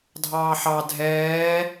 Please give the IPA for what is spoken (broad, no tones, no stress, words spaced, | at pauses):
dʱɑːħɑ dʱɛː